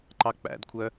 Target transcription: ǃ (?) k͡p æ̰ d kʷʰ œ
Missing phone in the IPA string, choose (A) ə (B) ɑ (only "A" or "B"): B